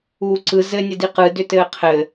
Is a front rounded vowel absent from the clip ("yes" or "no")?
no